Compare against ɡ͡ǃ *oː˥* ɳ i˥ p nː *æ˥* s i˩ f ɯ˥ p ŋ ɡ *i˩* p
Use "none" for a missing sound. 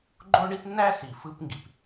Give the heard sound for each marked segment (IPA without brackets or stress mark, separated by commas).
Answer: o˥, æ˥, i˩